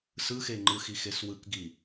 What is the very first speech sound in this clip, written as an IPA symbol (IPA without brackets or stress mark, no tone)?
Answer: s